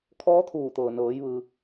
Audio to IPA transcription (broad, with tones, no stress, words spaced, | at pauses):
kʰɔː˧˥t̪ʰuː˧˩t̪ɤː˩nɤː˩˧j ʋɯː˩